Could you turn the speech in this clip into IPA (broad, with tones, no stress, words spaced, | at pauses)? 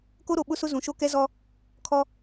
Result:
ko˦ɾo˨ɓʊ˦sʊ˦ zũ˨ʃo˦kɛ˦zɔ˦ | kʰɔ˦